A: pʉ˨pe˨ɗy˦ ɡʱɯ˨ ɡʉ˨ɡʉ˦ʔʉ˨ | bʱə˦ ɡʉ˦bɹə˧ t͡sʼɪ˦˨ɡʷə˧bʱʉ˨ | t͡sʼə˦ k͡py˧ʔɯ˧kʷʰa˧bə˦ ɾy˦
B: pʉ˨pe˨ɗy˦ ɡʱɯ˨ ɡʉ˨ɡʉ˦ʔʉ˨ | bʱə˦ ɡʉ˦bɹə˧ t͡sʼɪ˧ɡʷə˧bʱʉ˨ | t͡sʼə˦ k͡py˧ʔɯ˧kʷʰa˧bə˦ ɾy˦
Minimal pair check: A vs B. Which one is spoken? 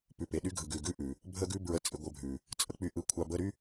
B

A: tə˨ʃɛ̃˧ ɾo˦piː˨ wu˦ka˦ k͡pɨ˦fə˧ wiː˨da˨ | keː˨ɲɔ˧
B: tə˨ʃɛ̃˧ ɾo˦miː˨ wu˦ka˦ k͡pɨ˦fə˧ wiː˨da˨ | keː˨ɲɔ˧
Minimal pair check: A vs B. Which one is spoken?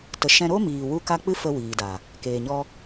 B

